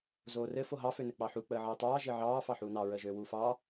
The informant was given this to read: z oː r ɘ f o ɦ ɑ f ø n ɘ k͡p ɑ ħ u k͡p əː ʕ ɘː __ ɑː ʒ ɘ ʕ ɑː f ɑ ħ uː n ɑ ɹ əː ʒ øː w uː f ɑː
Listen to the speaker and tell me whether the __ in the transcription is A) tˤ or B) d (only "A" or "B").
A